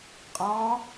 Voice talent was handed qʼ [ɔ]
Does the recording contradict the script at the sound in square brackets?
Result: yes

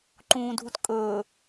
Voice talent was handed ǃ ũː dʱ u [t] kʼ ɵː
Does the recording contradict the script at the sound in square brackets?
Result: no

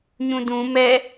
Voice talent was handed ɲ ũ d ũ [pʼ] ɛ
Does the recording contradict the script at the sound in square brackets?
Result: yes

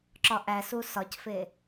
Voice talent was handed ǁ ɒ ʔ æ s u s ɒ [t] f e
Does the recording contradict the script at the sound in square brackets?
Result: yes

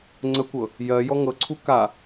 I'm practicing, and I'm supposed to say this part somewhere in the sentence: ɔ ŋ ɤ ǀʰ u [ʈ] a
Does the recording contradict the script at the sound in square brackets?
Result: yes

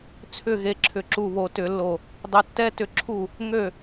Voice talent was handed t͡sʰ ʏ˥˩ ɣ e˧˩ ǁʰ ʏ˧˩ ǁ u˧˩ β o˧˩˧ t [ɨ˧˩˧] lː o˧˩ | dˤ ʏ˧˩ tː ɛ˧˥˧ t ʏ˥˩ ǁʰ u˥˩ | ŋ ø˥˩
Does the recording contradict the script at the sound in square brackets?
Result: yes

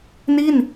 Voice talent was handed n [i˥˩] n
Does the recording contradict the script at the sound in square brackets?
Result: no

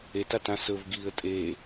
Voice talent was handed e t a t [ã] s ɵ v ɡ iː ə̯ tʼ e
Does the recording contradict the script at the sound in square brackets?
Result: no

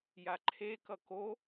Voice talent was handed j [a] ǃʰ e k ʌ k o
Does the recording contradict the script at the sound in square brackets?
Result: no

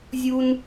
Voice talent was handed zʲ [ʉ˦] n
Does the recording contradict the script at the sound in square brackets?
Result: yes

